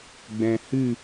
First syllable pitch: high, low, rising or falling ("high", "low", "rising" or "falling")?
low